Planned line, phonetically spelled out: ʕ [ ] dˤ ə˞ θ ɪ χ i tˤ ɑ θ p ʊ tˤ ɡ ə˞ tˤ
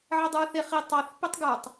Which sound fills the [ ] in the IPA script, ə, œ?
ə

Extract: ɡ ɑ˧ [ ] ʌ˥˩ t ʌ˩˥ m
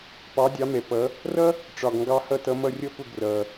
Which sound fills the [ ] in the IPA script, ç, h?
h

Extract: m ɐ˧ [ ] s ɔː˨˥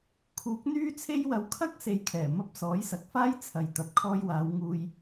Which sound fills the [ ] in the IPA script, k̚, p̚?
p̚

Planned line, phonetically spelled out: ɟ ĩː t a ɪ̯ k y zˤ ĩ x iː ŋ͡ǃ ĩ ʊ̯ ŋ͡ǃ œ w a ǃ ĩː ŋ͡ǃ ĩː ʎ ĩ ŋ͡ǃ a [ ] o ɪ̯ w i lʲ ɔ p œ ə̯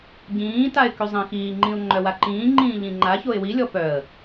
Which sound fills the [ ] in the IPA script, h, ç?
ç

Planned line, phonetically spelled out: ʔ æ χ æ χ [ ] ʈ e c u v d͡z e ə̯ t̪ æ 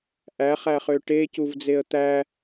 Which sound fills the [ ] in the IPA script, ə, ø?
ø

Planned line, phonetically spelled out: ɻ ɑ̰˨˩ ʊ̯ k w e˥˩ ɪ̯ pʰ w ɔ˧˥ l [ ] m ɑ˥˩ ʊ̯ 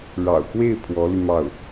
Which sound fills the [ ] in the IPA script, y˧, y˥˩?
y˧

